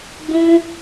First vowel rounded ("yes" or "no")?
yes